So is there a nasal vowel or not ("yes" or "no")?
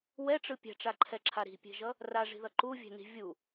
no